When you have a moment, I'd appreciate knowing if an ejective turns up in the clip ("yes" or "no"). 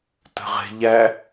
no